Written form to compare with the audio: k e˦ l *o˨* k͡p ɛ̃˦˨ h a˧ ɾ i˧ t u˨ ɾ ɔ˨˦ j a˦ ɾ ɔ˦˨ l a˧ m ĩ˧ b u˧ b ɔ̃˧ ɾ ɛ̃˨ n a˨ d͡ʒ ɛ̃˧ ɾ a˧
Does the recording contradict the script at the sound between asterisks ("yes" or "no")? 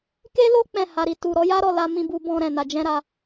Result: yes